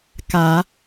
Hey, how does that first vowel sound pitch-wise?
rising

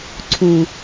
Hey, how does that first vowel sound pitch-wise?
low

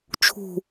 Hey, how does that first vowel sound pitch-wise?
low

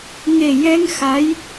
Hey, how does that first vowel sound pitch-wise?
low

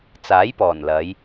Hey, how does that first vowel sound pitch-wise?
rising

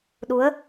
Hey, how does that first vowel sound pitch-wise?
rising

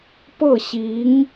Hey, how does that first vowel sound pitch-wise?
falling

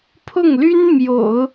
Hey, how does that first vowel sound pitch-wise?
falling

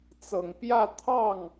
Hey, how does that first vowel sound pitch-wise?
low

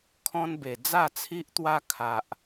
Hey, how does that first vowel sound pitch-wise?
high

